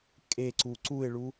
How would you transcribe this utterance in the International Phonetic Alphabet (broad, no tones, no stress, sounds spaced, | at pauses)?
kʼ e ǀ u ǀ u ɪ̯ ɭ u